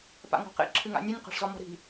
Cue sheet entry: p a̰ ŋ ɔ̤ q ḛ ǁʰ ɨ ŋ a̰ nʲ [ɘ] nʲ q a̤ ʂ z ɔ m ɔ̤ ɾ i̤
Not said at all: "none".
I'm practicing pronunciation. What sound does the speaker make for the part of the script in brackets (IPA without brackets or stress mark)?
ɘ